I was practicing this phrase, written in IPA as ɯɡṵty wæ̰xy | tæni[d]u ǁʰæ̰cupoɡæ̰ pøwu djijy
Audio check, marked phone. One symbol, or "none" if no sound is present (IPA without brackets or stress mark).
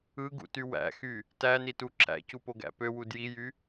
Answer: t